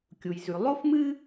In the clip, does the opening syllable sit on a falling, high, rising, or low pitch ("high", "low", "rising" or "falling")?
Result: low